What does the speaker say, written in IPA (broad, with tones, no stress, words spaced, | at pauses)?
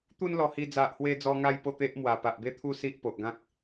t̪u˦nlɔ˧ hi˧ d͡za˨ʔhwe˧d͡zɔ˧ŋa˧j po˥˧t̪e˦ʔmwa˨˩ pa˨ʔbe˦t̪ʰu˦si˦ʔ po˨ʔɡã˦k̚